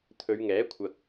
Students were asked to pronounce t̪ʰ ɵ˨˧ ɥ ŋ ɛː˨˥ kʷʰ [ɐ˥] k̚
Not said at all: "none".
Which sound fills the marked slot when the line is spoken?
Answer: ɐ˨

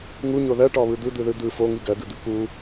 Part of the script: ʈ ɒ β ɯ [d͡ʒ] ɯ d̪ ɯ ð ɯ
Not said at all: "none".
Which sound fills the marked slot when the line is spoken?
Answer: d̪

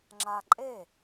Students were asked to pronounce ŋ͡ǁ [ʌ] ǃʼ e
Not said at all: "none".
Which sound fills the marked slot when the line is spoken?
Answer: a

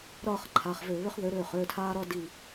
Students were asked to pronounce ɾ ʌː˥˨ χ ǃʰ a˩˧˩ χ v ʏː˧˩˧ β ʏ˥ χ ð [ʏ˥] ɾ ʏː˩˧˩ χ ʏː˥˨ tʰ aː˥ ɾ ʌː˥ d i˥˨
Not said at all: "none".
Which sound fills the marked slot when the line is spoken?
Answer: ʏ˨˥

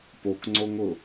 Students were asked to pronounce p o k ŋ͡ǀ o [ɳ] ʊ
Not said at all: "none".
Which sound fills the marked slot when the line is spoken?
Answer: ŋ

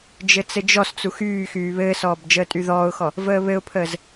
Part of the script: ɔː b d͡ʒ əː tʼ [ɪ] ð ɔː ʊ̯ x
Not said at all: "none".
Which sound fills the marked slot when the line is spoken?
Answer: y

